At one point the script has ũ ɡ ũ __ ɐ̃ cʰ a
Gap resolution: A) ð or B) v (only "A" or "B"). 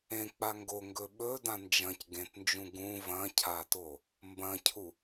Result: B